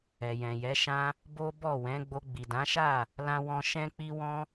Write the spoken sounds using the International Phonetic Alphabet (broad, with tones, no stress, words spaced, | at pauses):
ɛ˨jɛ̃˨jɛ˨˦ ʃã˧ | bo˦ bɔ˦˨wɛ̃˨˦ ɡ͡bo˧ɡ͡bi˨dã˨˦ʃa˦˨ | lã˦wɔ̃˦ ʃɛ̃˦k͡pi˦wɔ̃˦